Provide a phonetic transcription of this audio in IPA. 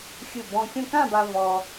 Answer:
xʲɯ˧˩bɔ̃˧kʲɔ̃˥˧ kã˥˧ba˧ vɔ˧

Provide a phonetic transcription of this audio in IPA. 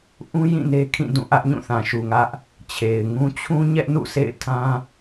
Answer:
ʔũ˦ jĩ˦˨ne˦kʰĩ˦˨ dũ˦˨ʔä˦ʔ ɲũ˦˨θã˨ʃu˨ŋä˦ʔ | t͡ɕʰe˨ɪ̯ŋũ˦ t͡ɕʰũ˦ ɲɛ˦ʔnṵ˦˨sʰḛ˦˨ɪ̯ tʰã˦

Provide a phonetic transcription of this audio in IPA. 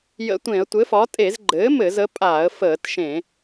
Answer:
jə̰˧˩˧tʷẽ˧˩˧ə̯tʷɘ˩˥fɒ˩˥ tʼe˧˩˧zɡ͡ǃɘː˩˥ mɘ˧˩˧zə˩˥pʼa˧˩˧ə̯ fəː˧˩˧tʃẽ˧˩˧

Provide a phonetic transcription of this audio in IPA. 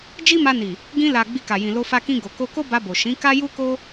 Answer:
d͡ʒi˦ma˧ni˨ | ɡĩ˧ la˨ ɡ͡bi˧ka˨jĩ˨ lo˧fa˧kĩ˧ ɡo˨ ko˧ko˦ ba˧bo˨ ʃĩ˨˦ka˦ ju˦ko˦

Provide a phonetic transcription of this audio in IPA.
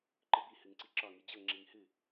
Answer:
ǃɨbi hɨŋǀiǁɒ ŋid͡ʑɤ ŋ͡ǁiŋhɨ

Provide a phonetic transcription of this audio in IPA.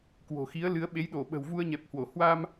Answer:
kwo̤˨˩xi˨˦ə̯lɨ˨˦ə̯ɓe˨˦j ɗo˧˩ɓə̤˨˩w vu˧ə̯ɲɛ˨˩p̚hwo˧˩ hwa˧m

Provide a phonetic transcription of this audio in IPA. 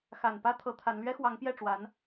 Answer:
xa˨˩npä˥ t̪ʰɤ˧˥t̪ʰa˧˥n lɥɛ˥xwɑ˧˥ŋpjɛ˥˩ʈ͡ʂwa˧˥n

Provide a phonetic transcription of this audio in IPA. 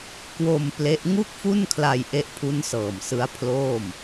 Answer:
kwo˧m ple˦˥ʔ ŋu˥˩k̚fu˥˩n kʰla˧j ʔe˦˥ʔpʰu˦˥nsɤː˨˩m sɯ˦˥a̯pʰloː˥˩m

